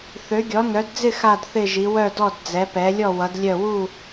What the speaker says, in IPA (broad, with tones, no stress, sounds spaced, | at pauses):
θ ø˨˦ ɡʲ ɔ˨˦ n œ˨˦ d d͡z ɪ˥˧ x a˥˧ d θ ɪ˥˧ ʒ i˨˦ w œ˥˧ d ɔ˥˧ d d͡z ɛ˨˦ p ɛ˨˦ lʲ ɔ˥˧ w ʌ˨˦ d lʲ œ˥˧ w u˥˧